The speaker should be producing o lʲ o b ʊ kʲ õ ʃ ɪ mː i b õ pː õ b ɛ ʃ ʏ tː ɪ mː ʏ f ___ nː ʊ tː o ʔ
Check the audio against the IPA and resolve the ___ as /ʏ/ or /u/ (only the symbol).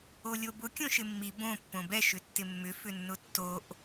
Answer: ʏ